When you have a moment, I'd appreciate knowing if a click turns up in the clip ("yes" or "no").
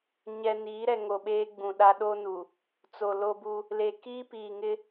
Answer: no